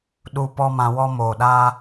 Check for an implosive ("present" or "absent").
present